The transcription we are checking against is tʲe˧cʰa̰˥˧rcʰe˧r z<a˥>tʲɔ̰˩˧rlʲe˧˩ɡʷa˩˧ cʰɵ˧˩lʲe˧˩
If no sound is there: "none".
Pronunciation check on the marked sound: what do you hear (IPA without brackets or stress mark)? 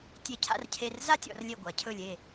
a˥